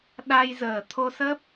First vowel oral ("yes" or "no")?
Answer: yes